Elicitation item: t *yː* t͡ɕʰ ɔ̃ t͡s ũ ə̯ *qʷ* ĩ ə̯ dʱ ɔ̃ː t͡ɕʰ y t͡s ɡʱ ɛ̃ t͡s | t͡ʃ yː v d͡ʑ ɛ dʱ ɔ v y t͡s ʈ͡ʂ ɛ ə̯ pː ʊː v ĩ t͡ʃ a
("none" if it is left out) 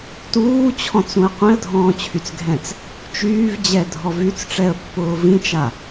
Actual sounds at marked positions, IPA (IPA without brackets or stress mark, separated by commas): uː, qʷ